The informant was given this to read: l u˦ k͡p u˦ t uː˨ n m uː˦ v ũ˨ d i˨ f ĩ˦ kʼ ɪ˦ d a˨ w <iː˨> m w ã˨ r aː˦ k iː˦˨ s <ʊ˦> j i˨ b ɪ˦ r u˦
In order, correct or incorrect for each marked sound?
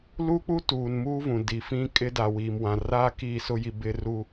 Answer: correct, correct

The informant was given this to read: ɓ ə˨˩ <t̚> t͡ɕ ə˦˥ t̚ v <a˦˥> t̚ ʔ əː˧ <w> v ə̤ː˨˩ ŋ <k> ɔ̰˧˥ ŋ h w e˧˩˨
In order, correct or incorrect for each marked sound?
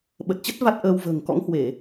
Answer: correct, correct, correct, correct

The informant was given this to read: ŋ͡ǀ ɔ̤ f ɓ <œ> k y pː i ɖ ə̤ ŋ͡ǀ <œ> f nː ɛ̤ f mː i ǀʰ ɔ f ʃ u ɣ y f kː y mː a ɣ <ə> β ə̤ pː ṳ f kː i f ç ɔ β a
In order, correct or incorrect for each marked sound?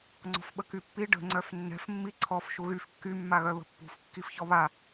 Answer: incorrect, correct, incorrect

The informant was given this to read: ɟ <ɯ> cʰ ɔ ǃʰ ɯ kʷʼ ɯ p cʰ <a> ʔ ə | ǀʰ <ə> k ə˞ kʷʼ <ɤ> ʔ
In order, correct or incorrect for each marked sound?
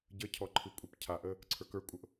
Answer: incorrect, correct, incorrect, correct

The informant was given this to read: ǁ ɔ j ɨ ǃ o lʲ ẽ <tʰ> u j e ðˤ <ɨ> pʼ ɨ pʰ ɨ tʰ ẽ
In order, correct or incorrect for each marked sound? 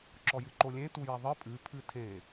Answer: incorrect, correct

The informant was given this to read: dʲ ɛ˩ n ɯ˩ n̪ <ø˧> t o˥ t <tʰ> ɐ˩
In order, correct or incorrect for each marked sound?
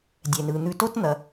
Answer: incorrect, incorrect

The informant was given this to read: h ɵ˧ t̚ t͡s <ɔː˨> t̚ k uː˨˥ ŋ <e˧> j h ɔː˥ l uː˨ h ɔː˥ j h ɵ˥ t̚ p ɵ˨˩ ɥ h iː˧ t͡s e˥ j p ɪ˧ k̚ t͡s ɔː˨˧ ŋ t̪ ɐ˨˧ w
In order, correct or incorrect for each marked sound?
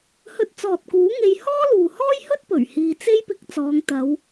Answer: correct, correct

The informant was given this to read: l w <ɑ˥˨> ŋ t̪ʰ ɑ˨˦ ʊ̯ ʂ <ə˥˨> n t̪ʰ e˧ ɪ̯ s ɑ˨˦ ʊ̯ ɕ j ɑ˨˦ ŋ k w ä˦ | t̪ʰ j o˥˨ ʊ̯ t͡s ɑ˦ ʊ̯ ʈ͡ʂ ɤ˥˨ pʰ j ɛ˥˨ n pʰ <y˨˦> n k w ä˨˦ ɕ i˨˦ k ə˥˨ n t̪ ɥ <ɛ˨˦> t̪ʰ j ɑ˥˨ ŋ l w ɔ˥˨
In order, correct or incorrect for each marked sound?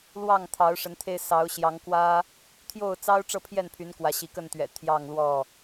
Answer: correct, incorrect, correct, incorrect

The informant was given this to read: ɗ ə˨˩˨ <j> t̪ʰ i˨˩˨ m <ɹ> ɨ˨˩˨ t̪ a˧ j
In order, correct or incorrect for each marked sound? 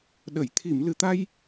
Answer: correct, incorrect

